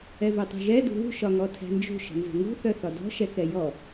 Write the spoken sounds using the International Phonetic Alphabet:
ɛ v œ tˤ ṳ ʒ ɛ d ṳ β ṳ ʃ ɒ ŋ ɔ tʰ ɛ̤ n d͡ʒ ṳ ʃ ə̤ n z ə̤ ŋ ṳ θ œ θ ɒ d ɔ̤ ʃ ɛ k ɛ j ɔ

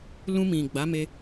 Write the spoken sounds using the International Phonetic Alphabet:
l ũ˧ m ĩ˨ ɡ͡b a˨˦ m e˧

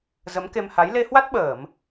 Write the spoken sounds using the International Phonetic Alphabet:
z ə˨˦ m k e˧ m h a˨˦ j l e˧ h w a˦˥ t̚ ɓ əː˧˩˨ m

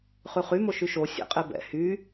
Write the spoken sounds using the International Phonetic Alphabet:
χ ʉ χ y m o ʃ y ʃ o sʲ ɛ̰ qʼ e b ɛ̰ h y

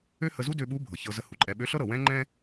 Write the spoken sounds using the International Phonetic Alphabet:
ø˥ h ə˧ z u˥ d ø˧ ɓ u˧˥ bʱ ɤ˩ ç ɤ˧ z ə˧˥ h u˩ ǃʼ ɛ˧ ɓ ø˧˥ ɬ ɤ˥ ɾ ɤ˩ w ɛ̃˥ ŋ͡ǃ ɛ̃˥

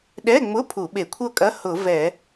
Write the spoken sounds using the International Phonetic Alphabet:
ɗ ɛ˧˥˧ ŋ͡m ʊ˧˥˧ pʰ u˧˩˧ ɓ e˧˩˧ kʷʰ ɤ˥˨ kʼ ɐ˧˥˧ h ʊ˧˩˧ v ɛ˧˩˧

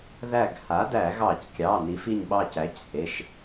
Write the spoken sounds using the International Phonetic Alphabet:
ð æ˧˩ ɡ h a˩˥ d æ˧˩˧ ɣ ɑ˧˩˧ c kʲ ɑ˩˧˩ n i˩˥ f i˧˩ ɲ ɓ ɑ˧˩ c æ˩˥ c h e˩˧˩ ʃ

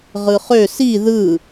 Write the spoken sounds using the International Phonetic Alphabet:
ʁ ɯ χ ø s i ð ɯ

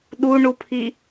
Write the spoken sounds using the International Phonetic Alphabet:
ɗ u ɳ u pʰ i

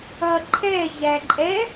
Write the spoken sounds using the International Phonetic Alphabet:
ʌ ǃʰ ɛ ʑ æ ǃʼ ɛ

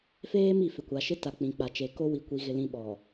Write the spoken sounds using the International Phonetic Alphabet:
f eː˦ m i˨ f ɪ˨ kʷ a˨ ʃ ɪ˦ t a˨ k͡p ĩ˨ k͡p a˨ t͡ʃ e˨ k o˦ w i˨ kʷ i˨ ɣ ɪ˨ l ĩ˨ ɓ ɔ˨

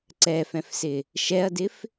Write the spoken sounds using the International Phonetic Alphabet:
ǀ ɛ f ɛ̃ f s ɪ | ʃ ɛ ɐ̯ d ɪ f

